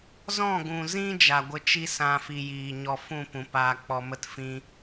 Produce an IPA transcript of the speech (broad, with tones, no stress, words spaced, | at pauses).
zɔ̃˦˨ɡũ˨zĩ˦ d͡ʒa˧ɡʷə˦ t͡ʃi˦sã˧ fi˧jiː˨ɲɔ˧ fũ˦˨pũ˨ paː˧k͡pɔ˧mə˦t fĩ˦